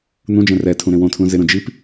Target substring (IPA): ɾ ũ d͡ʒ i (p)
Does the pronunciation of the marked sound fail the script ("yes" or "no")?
no